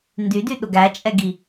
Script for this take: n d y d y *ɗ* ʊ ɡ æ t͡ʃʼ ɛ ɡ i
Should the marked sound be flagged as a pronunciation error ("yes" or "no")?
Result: no